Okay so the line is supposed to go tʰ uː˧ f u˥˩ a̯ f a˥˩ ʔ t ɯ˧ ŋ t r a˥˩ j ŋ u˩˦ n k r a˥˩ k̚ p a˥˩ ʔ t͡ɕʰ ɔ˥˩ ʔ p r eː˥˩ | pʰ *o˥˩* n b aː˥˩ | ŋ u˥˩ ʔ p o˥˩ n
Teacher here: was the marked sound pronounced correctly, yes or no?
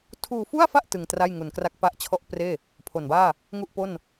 no